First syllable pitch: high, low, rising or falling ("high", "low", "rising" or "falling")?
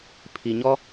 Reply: low